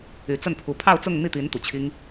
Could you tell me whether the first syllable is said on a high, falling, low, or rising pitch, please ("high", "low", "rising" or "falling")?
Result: rising